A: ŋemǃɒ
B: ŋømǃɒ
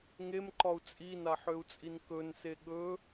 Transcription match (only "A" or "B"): A